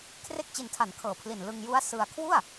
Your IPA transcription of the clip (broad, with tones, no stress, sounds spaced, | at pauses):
kʰ r e˥˩ k̚ t͡ɕ i˧ n tʰ a˨˩ n kʰ ɤː˨˩ pʰ l i˨˩ n l ɯ˧ ŋ j u˦˥ a̯ s ɯ˧ a̯ kʰ w u˥˩ a̯